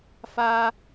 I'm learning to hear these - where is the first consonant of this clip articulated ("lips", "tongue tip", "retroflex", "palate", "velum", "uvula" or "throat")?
lips